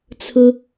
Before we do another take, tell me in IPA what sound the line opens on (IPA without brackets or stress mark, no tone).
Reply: t͡sʰ